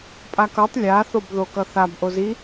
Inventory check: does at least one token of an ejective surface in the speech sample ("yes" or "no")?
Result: yes